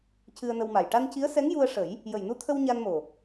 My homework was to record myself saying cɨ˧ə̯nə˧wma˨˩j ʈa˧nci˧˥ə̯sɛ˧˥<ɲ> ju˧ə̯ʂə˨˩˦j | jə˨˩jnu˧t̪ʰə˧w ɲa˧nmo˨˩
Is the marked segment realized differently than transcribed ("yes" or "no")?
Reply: yes